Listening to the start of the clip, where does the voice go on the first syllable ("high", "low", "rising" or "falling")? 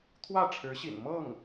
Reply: falling